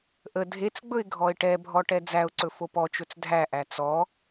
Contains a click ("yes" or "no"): yes